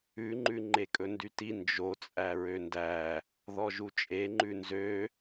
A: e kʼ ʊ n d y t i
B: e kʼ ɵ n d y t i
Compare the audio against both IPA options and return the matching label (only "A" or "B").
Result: B